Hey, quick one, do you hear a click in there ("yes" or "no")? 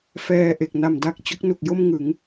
no